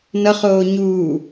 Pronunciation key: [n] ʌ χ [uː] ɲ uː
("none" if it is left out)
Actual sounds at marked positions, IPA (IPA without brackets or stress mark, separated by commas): n, oː